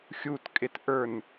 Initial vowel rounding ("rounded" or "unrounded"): rounded